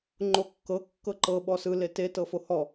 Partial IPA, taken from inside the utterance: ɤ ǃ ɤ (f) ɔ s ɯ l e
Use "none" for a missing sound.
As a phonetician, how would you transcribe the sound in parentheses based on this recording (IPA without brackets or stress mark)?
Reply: ɓ